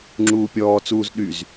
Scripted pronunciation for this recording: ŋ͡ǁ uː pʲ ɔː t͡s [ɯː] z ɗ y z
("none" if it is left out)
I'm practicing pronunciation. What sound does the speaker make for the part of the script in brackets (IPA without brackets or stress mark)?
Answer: uː